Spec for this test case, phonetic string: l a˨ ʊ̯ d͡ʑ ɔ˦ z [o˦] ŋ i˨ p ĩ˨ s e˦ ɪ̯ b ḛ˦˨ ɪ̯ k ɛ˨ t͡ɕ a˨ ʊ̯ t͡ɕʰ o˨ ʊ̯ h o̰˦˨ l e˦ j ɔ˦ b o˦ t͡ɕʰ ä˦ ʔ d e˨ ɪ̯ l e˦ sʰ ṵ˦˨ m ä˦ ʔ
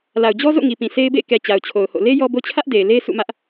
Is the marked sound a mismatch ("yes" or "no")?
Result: yes